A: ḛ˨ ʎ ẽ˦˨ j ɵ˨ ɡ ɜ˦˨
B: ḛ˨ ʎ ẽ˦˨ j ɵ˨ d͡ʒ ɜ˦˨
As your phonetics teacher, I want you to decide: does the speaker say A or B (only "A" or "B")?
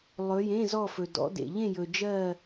B